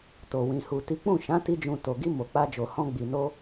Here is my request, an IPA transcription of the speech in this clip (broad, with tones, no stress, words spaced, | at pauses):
to˨wĩ˨hu˨ ti˨˦k͡pũ˦˨ʃã˨˦ ti˦d͡ʒũ˧ to˨ɡi˧ mo˨k͡pa˧d͡ʒo˨ hɔ̃˧ɡ͡bi˨no˧